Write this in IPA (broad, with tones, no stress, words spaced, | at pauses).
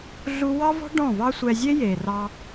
ɮu˦ wɑ˦vɔ̤˦ ɖɔ̃˦˨vɑ˦ sʷɛ˧zʲe˦je˨rɑ˧